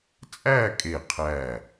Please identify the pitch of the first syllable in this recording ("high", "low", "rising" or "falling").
falling